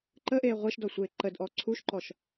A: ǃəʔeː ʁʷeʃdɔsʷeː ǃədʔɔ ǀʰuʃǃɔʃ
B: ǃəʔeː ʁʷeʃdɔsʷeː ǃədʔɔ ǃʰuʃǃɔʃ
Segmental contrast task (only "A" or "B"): A